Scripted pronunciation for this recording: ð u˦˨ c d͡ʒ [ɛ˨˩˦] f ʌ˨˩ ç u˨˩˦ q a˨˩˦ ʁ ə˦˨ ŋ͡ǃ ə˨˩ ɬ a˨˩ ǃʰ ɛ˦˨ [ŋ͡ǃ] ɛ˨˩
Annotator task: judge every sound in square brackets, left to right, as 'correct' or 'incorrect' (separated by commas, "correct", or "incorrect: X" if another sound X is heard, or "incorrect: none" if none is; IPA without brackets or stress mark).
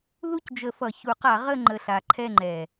incorrect: ə˨˩˦, correct